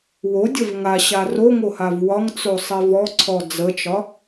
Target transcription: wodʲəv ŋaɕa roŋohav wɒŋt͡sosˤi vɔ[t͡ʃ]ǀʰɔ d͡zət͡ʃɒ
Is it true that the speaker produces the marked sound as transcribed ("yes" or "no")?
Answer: no